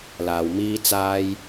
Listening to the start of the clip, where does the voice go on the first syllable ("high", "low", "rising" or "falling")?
low